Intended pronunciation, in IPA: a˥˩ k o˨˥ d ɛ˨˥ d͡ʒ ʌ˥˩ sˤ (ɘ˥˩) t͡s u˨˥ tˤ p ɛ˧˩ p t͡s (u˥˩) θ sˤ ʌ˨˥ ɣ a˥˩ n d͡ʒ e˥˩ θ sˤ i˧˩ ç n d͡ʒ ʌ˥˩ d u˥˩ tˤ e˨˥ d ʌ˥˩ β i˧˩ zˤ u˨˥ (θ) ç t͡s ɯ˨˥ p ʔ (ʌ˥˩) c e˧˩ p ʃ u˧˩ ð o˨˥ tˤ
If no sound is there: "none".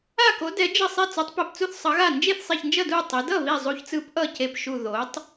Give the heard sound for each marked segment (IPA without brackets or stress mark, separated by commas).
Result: ɛ˥˩, u˥˩, none, ʌ˥˩